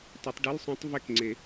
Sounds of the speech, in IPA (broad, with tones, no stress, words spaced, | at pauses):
tˤu˨˩˦tˤɖɨ˧˥˧lsˤõ˦˥tˤ vɛ˦˨k ŋ͡ǀe˨˩˦